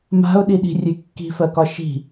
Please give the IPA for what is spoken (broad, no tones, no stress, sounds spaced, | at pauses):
m a̤ ʊ̯ ɗ i ɗ i̤ rʲ e kː i̤ f ɜ k ɒ ʃ i̤